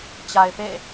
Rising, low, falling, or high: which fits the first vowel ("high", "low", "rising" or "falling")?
low